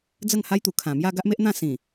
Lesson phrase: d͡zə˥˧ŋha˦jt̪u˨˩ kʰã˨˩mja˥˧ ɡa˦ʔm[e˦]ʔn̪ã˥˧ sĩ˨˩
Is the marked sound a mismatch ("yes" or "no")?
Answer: no